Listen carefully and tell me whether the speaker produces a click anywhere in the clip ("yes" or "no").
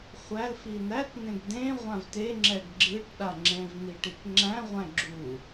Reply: yes